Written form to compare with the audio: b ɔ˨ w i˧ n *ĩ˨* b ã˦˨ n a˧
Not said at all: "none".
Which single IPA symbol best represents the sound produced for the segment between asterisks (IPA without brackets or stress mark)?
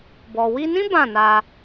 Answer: ĩ˦